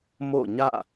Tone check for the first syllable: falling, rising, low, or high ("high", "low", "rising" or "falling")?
falling